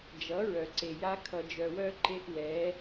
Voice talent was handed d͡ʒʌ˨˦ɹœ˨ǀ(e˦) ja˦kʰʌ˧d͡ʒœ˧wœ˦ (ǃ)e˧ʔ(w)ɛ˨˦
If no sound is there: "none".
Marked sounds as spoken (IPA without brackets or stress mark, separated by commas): e˨, ǃ, w